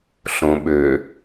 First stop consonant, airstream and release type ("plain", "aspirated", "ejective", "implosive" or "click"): implosive